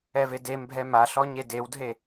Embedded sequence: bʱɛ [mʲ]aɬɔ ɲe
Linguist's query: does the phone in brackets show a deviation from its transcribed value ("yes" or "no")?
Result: yes